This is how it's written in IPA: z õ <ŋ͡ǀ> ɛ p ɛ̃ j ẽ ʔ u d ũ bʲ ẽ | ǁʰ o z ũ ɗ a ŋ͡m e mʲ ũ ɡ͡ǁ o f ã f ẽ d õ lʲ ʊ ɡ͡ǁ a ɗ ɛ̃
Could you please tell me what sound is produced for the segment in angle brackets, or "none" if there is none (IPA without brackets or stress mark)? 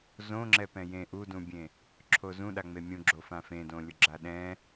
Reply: ŋ͡ǁ